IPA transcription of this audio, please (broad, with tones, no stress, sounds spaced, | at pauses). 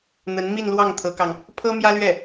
n̪ ə˧˥ n m i˥˧ n l w ɑ˥˩ ŋ t̪ʰ ɤ˧˥ k ɑ˧ ŋ | pʰ ɤ˥ m j ä˥ l ɥ ɛ˥˩